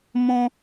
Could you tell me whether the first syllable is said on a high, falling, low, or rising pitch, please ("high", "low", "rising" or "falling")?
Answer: high